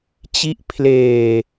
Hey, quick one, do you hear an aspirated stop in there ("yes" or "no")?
yes